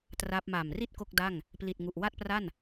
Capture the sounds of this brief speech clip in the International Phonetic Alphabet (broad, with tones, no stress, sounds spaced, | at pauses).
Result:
t r a˦˥ p̚ m a˨˩ m r i˥˩ t̚ k o˥˩ k̚ d a˥˩ ŋ | p l i˨˩ t̚ ŋ u˨˩ ʔ w a˥˩ t̚ p r a˥˩ n